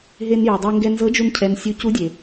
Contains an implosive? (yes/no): no